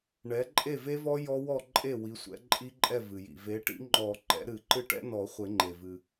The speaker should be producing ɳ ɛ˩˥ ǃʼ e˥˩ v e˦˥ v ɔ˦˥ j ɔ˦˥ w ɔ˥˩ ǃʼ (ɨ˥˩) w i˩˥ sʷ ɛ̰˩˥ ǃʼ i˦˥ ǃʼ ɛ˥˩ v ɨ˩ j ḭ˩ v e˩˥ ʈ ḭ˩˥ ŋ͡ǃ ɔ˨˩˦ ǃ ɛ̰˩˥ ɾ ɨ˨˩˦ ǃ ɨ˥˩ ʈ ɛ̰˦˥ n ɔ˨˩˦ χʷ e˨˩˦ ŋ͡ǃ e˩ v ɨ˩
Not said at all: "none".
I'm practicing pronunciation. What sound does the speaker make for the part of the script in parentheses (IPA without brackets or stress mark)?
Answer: e˥˩